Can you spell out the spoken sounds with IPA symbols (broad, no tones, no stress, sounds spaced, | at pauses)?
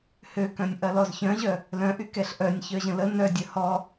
h ø k œ̃ nʲ ʔ ɐ l ɔ z ç œ̃ ʑ œ | l œ̃ ʔ y k ɛ ɬ ʔ œ nʲ ç œ ʑ ə̃ l ə n œ dʲ œ h ɔ